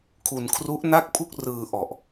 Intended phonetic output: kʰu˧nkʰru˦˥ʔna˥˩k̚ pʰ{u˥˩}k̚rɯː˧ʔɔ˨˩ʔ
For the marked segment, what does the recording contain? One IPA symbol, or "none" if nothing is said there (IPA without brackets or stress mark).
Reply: u˥˩